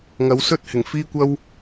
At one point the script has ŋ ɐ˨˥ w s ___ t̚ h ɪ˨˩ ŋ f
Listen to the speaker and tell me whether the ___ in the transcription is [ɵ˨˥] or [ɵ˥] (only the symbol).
ɵ˥